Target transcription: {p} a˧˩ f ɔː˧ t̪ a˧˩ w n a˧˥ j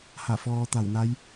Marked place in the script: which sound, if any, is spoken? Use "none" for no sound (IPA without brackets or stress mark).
h